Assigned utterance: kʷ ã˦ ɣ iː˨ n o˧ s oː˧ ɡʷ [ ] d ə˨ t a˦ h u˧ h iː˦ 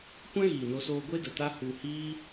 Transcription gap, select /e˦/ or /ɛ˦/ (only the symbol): e˦